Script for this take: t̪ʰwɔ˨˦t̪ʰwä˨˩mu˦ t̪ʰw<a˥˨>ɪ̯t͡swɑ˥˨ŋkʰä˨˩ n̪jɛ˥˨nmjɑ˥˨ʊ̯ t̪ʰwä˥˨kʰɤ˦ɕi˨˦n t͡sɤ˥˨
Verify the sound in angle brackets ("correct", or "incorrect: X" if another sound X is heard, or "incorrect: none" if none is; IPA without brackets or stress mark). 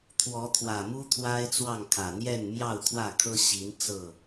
incorrect: a˦